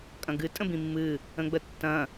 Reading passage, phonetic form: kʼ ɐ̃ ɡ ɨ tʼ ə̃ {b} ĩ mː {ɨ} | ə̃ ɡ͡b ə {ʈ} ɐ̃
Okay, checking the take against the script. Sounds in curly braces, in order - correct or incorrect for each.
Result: correct, correct, incorrect: tː

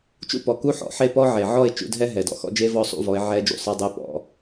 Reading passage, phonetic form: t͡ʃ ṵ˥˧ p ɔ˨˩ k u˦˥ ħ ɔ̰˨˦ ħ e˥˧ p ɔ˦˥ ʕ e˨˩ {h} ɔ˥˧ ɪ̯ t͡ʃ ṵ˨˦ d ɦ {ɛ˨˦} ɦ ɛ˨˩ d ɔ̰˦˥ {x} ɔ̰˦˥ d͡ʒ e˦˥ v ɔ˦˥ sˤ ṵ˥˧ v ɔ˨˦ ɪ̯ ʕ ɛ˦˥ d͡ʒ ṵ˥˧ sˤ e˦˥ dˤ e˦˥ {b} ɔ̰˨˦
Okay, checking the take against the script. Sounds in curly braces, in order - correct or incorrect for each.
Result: incorrect: ʕ, incorrect: ɛ˦˥, correct, incorrect: p

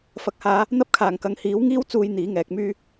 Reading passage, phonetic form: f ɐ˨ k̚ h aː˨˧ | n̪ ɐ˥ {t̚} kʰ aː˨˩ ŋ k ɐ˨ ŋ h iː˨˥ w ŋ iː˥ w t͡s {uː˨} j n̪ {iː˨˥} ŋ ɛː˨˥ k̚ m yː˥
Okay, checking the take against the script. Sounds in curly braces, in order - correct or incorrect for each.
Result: incorrect: p̚, correct, correct

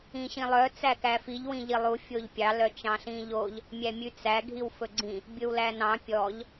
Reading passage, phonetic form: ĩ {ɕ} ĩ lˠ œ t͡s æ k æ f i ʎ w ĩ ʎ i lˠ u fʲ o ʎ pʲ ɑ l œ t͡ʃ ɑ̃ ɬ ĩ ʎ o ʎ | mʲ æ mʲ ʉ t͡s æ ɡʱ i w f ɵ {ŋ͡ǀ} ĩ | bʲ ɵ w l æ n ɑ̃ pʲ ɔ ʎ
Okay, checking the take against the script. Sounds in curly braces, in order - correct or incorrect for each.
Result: correct, incorrect: ɡ͡ǀ

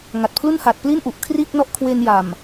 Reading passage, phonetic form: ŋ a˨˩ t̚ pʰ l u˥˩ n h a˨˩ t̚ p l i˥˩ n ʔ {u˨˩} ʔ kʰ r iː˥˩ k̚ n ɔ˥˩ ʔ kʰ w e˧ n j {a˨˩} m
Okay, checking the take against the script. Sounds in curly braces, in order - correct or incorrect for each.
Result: correct, correct

